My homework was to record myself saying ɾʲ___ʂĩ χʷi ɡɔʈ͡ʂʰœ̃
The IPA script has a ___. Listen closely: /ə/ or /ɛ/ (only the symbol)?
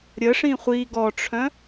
ə